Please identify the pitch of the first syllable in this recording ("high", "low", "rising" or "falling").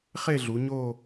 falling